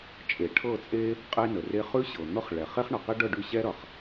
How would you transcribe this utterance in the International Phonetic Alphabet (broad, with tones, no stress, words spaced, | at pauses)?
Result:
t͡ʃʼe˩ ʈʰɤ˥˨t͡sʼe˥ | qʼe˥nə˩re˥ χʉ˥ɕɤ˩n̪ɤ˥χɭɛ˩ χe˥χɳʌ˩qe˥ɖɤ˥˨ ɖʉ˥˨ɕɛ˥ɾʌ˩χ